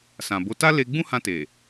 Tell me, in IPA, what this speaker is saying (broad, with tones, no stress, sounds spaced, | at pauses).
s ã˨ b o˨˦ t a˦ l e˧ ɡ͡b ũ˦ h ã˧ t e˨